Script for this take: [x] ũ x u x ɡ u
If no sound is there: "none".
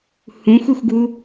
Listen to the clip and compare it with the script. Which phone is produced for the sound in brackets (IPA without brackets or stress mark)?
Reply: h